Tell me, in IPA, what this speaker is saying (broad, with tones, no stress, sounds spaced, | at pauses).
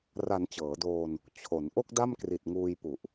r a˩˦ n t͡ɕ ɤː˩˦ d oː˧ n | t͡ɕʰ o˩˦ n ʔ o˥˩ k̚ d a˥˩ m k r i˨˩ t̚ ŋ uː˧ j p u˨˩ ʔ